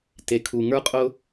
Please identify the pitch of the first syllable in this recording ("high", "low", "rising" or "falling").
low